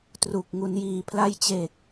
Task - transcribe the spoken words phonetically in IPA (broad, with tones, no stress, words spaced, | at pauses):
tru˨˩k̚ ŋu˩˦njiː˩˦pʰla˦˥jt͡ɕeː˨˩k̚